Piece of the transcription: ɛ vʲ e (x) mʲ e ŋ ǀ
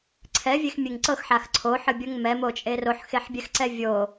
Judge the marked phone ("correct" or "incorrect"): correct